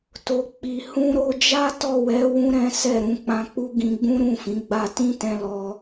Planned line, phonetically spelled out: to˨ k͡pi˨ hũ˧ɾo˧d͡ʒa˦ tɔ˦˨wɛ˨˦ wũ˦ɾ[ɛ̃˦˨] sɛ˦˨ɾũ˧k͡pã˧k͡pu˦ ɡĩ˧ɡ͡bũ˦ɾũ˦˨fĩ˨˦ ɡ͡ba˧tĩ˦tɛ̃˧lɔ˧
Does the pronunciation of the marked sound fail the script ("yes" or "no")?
yes